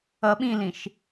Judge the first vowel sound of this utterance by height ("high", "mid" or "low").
mid